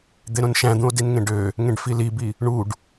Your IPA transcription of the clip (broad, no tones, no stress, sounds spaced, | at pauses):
d̪ e ɾ õ n ʃ æ̃ d̪ ũ o̯ d i n ŋ ẽ ɖ ø | ŋ ẽ ɖ f i l i b i | ɳ u ɖ